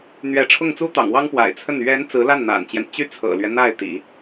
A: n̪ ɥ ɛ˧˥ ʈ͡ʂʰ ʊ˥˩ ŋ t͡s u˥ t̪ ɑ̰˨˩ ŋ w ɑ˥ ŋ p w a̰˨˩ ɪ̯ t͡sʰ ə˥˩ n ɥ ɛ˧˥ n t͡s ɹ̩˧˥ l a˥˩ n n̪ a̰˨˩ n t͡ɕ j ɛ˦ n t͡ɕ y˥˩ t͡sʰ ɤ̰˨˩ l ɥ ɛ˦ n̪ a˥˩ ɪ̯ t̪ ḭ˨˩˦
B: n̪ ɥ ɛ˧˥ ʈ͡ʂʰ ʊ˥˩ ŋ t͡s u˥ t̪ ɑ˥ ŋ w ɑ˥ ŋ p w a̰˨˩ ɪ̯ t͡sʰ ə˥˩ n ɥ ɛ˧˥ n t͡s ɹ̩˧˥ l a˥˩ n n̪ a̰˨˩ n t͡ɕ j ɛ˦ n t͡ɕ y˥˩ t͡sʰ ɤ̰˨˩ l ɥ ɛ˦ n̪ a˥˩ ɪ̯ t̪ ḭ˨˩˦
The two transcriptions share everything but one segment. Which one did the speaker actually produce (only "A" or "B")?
A